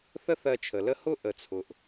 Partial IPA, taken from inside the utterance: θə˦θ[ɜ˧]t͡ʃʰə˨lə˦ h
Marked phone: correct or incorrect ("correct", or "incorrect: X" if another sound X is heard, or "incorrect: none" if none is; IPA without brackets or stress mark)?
correct